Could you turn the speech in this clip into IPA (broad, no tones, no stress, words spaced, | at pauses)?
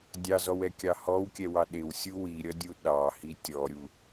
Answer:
dʲɑzɔwɛkʲɑ hɔwkʲɛwɑ ɗɪwsʲu wiɾʲʌdʲu ɗɑhi tʲɔɾʲu